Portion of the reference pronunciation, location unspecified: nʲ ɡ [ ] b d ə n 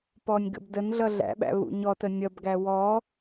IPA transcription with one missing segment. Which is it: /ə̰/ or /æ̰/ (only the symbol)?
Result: ə̰